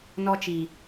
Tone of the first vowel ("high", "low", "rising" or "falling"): high